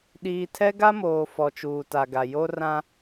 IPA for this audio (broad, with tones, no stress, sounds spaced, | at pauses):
ɗ iː˨ tʰ ɛ˦ ɡ a˦ m oː˨ f ɔ˨ t͡ʃ uː˨ t a˨ ɡ a˨ j o˦ r ã˦